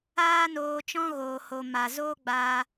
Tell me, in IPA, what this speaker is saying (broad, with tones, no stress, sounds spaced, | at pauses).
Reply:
aː˦ n oː˧ t͡ʃ ɔ̃˦ ɣ oː˨ h o˨ m a˨ z oː˦ ɡ͡b aː˧